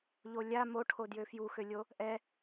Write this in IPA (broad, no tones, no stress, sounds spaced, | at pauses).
ʎ o lʲ a m o ʈʰ o d j ø f j u x ø lʲ o | ʔ ɛ